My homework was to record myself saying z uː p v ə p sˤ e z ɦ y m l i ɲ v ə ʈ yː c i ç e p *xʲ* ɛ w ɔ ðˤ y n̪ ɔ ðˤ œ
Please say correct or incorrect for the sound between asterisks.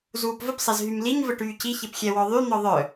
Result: correct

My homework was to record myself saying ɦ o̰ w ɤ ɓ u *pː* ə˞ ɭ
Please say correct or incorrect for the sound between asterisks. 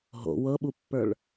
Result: correct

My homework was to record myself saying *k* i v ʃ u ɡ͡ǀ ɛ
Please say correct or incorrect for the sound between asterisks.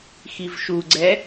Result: incorrect: x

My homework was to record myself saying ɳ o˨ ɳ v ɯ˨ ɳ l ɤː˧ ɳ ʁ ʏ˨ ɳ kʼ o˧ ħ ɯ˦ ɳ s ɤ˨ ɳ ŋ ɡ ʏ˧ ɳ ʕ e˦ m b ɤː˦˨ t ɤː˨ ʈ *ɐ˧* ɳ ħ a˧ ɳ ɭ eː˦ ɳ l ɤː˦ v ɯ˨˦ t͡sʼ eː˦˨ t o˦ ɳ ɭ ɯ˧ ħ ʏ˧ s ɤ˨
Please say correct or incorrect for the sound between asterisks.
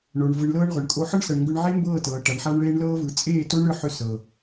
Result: incorrect: ɐ˨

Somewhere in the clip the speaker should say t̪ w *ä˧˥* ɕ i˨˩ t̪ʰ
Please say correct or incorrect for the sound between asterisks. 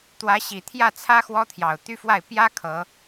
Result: correct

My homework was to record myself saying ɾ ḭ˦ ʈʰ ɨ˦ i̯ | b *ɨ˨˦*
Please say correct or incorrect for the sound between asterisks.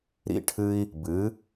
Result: correct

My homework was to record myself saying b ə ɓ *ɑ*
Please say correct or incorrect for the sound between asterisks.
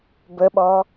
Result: incorrect: ɔ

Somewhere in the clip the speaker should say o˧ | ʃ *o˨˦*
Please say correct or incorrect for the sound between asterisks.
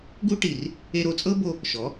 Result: incorrect: ɔ˨˦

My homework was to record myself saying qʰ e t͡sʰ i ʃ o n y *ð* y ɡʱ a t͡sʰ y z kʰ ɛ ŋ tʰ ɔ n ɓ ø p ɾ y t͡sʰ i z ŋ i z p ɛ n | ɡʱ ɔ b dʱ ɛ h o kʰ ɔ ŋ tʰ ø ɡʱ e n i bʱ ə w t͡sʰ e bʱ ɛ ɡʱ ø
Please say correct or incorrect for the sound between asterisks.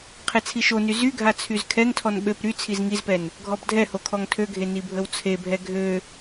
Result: incorrect: z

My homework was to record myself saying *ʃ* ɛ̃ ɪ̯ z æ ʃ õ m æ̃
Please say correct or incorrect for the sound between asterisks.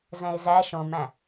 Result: incorrect: z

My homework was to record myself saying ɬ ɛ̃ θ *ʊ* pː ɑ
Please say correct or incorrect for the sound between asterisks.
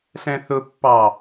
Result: correct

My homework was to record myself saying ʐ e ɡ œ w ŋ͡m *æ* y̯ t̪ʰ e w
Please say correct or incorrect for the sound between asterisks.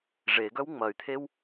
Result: incorrect: ɐ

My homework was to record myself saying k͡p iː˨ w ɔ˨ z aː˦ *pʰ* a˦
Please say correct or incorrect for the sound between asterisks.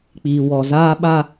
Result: incorrect: ɓ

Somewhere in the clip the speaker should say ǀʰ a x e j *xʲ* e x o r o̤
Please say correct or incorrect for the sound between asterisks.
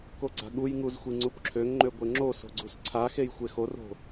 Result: incorrect: xʷ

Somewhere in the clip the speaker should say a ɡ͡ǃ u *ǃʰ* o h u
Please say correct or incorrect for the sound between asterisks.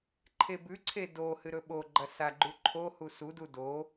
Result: correct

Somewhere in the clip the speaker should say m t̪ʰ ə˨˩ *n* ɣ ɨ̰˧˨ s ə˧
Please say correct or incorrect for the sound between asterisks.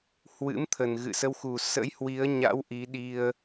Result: correct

